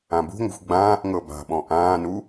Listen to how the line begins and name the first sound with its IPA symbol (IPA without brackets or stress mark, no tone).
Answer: ã